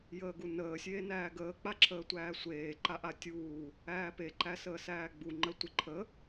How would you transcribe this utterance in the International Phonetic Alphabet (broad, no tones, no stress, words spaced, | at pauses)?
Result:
jəːɡunəː sʲeːnæːɡəː k͡paǁʰəːtʷæːsʷeː ǃaʔatʲuː | æːpe ǃæsəːsæːɡ͡bu ŋ͡ǃətʷɪ ǃʰə